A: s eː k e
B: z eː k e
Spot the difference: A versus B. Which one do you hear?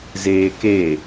B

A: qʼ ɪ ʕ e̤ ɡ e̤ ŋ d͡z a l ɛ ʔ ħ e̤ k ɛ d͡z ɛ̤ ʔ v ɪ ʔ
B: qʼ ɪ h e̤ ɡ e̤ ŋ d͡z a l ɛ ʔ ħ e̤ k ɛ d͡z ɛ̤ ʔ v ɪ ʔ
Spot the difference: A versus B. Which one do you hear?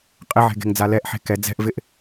A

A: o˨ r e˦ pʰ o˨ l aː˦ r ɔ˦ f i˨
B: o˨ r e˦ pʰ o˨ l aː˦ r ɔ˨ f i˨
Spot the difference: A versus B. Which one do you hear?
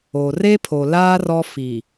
A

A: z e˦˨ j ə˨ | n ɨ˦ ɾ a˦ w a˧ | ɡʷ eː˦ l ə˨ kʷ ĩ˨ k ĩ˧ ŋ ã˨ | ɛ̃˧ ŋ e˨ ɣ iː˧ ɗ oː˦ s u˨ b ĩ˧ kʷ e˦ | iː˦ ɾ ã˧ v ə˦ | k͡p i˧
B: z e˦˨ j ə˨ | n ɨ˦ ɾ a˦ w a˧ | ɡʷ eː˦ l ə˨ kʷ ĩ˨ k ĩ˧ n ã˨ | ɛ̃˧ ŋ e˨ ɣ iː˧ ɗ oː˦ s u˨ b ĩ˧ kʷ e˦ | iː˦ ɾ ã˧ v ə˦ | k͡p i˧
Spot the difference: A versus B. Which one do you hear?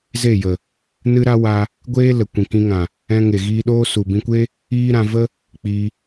A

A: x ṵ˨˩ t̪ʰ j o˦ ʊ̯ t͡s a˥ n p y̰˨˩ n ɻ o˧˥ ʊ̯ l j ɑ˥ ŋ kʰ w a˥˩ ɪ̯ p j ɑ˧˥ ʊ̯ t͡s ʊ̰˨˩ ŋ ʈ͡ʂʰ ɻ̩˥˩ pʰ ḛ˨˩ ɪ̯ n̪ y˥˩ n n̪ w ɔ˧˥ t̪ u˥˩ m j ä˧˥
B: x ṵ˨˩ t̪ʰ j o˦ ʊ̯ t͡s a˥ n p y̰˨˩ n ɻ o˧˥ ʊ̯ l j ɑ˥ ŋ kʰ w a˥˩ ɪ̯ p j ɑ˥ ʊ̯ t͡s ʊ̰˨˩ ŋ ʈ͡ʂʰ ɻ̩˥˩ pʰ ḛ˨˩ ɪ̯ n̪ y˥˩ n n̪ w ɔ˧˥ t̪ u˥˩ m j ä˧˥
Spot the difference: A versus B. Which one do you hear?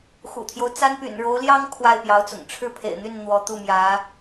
A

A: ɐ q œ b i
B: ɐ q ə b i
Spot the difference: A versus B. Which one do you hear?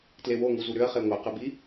B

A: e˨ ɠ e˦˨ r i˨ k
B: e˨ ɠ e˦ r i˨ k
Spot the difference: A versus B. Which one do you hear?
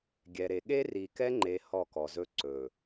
B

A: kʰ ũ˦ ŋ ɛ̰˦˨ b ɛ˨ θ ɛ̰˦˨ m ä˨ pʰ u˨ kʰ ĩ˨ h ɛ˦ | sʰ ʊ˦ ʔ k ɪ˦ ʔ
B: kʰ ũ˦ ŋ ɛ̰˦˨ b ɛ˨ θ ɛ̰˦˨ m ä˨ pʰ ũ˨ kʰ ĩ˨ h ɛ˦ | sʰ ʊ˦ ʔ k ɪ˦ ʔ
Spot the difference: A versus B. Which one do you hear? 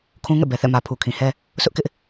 A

